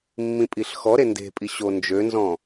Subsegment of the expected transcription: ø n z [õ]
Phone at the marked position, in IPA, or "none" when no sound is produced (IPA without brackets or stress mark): ɔ̃